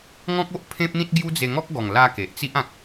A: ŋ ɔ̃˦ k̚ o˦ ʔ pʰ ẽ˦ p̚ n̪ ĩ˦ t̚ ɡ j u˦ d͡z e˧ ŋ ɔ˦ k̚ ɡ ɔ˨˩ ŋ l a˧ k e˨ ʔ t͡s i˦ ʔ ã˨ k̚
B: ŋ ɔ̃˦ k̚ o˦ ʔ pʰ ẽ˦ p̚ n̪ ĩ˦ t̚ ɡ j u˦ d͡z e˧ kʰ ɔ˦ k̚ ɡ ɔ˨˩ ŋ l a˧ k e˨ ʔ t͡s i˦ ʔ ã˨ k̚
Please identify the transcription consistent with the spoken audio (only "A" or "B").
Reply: A